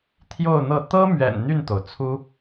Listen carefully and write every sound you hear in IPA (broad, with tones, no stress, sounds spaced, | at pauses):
t̪ʰ j o˥˧ ʊ̯ n̪ ɤ˥˩ t̪ ɤ˥ m ɥ ɛ̰˨˩ n n̪ y˥˩ n t̪ o˩ ʊ̯ t͡sʰ u˥